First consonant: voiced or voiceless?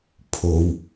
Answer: voiceless